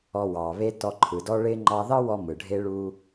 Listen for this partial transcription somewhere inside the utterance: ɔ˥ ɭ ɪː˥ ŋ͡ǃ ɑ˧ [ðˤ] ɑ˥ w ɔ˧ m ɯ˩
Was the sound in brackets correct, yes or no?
no